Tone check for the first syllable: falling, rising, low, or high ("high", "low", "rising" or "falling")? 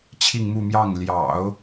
falling